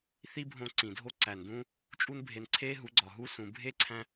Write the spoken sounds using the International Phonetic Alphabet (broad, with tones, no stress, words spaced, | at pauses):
θi˦bʱõ˧ ǀĩ˨ dʱo˦ ǀæ˨n dũː˦ | t͡ʃʼu˦nbʱe˧n ǀʰeː˦ɦu˨˦ ɡ͡ǀɒ˨ɦu˧sũ˨ bʱe˦ǀʰæ̃˧